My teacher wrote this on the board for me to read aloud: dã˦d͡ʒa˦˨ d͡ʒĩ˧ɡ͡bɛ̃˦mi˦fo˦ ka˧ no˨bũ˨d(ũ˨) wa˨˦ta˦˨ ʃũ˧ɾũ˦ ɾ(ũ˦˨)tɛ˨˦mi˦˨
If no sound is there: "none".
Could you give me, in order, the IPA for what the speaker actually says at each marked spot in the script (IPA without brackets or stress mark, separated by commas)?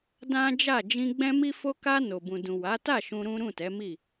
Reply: ũ˨, ũ˦˨